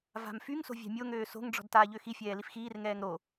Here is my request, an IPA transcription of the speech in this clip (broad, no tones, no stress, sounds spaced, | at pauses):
v a̤ m f y ŋ s o̤ vʲ a̤ mʲ o ŋ øː s o̤ ŋ ɖ͡ʐ ɔ̤ d t aː ʎ ø x i fʲ ɛː l i f x iː r ŋ ɛː ŋ ɾ o